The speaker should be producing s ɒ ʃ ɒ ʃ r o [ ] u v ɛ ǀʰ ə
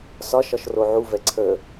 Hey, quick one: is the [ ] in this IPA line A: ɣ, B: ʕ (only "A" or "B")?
B